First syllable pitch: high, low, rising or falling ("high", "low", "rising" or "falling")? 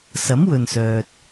rising